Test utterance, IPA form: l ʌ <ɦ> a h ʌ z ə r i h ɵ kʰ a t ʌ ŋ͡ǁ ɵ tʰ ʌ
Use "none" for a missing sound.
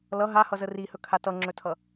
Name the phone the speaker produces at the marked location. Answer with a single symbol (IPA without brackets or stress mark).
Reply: ɦ